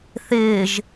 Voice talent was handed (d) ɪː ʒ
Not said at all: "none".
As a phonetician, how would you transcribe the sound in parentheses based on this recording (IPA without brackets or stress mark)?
θ